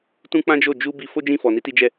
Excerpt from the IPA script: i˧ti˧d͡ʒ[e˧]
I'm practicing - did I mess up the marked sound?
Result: yes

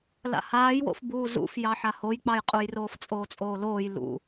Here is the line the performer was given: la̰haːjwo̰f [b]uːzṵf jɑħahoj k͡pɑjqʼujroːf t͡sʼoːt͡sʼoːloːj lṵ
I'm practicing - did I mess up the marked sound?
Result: no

